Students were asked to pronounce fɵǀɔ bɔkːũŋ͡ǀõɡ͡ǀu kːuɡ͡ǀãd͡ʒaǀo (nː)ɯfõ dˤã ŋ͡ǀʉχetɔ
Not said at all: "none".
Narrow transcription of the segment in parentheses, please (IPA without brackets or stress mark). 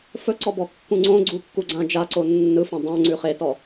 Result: nː